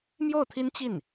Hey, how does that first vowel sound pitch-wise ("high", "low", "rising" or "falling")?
falling